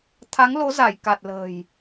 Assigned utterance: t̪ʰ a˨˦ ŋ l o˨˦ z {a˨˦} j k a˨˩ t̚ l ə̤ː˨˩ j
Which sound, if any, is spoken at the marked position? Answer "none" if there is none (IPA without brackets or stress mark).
a˧˩